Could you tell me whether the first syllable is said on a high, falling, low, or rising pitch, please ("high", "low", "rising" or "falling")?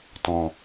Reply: low